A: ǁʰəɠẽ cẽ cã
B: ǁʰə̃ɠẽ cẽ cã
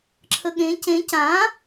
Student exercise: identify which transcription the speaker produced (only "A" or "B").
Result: A